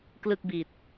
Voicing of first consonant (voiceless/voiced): voiceless